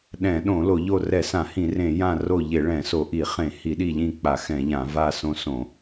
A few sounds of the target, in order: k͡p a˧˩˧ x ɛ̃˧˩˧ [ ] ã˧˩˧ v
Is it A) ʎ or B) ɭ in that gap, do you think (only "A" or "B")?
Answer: A